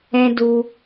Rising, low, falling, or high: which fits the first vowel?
high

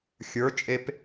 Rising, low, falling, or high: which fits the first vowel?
rising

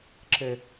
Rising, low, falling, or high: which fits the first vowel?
low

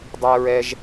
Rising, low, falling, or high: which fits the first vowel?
high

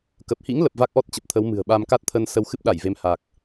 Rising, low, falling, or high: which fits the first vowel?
low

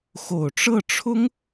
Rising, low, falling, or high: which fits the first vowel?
low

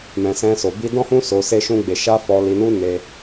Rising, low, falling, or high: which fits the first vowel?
low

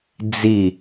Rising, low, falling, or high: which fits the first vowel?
falling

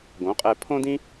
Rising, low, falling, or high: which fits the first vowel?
rising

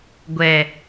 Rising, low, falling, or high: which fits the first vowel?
low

